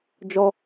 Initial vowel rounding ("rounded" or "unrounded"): rounded